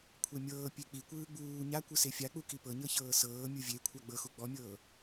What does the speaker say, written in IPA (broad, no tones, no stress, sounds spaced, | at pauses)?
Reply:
kʷʰ ɛ mʲ ɤː pʲ e k͡p i kʷ ɯː ɡ͡b uː ɲ a kʷ ɯ s e fʲ a k͡p u k i p ɤ ɲ ɤ ç ɤː s ɤː mʲ ɯ vʲ e kʷʰ a ɡ͡b ɤ x u ɡ͡b ɔ mʲ ɤː